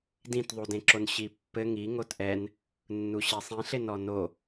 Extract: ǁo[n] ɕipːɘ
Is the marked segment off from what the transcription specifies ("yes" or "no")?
no